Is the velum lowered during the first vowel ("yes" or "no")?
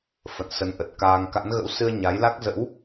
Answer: no